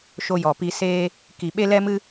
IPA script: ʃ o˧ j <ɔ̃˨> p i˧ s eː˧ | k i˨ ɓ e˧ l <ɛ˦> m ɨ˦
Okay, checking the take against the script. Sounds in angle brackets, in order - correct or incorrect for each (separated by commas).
incorrect, correct